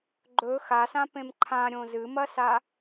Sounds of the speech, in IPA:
ɡ͡ǃɵ xasãpẽm ǃʰãɾʲõ zɨmɐsa

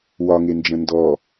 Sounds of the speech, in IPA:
wɒ ŋend͡ʒə̃ndɔ

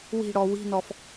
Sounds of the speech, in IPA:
wi̤ɽɔ wi̤nɔf

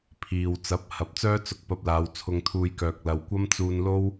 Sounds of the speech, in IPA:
pʰiː˨w t͡sɐ˨˥p̚ hɐ˨˥p̚t͡sœː˥ t͡sʊ˧k̚pɐ˧p̚laː˨˧w t͡sʰʊ˧ŋt̪ʰuː˧jkœː˨k̚ lɐ˨wkʷɐ˥m t͡suː˧nlo˥w

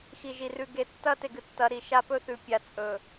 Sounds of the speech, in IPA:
xi˨ʒi˨rʉ˨ ɡe˨tːɐ˦te˨ɡɨ˨ tːɐ˨˦ ɾi˨ʃa˦pɵ˦ θʉ˨pʲa˨ t͡sʼɵ˨

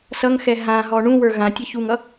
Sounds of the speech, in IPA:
sʌŋxɛ ɦãɦɔ ɳũwə˞ ɣãtʲʌ çuŋʌ

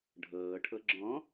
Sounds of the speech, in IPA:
ɖʱɤːʈʰɤ ɡ͡ǁɔ̃

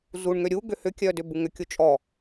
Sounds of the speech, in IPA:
zuɳŋø ɾʲu ɡʏhʏkʲœ dʏbuŋʏkʲu t͡ʃʼɔ

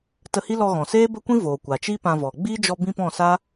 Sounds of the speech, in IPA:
tə˧hi˦lɔ˧ ɣɔ̃˨seː˦bə˦kʷĩ˦ voː˨kʷa˨t͡ʃiː˦ pã˧vɔ˨ ɡ͡biː˦d͡ʒɔ˧ bĩ˦pɔ̃˦˨sa˦

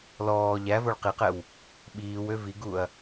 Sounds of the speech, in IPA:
lɔː ʎævoɭ qiqɛw | ɓiːwø viɡuɐ̯

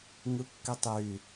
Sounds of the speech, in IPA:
ŋɯkːitˤjy

